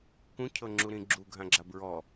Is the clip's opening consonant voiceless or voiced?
voiceless